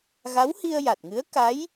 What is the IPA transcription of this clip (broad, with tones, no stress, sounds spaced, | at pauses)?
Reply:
ɣ a˧˥ w h i˧ ə̯ j a˨˩ t̚ ŋ ɨ˧˥ ə̯ k a˧˥ j